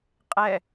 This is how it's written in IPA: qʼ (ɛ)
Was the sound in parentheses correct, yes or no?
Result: yes